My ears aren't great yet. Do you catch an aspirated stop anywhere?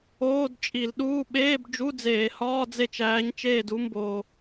no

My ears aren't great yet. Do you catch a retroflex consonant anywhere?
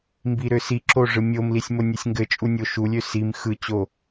yes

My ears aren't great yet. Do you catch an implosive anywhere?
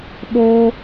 yes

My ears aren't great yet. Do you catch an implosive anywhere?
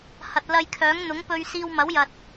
no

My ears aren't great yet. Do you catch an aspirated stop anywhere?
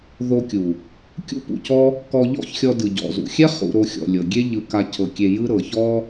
yes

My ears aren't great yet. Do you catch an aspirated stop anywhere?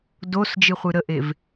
no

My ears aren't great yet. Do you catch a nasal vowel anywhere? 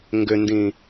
yes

